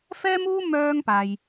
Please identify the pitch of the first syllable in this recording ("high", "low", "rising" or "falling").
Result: high